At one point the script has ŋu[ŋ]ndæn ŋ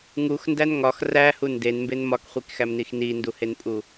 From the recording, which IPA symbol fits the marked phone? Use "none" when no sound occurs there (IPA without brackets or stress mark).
x